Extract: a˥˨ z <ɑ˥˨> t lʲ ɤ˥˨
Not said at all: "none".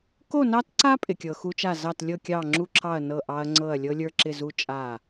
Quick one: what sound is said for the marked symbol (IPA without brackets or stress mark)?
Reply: ɑ˥˨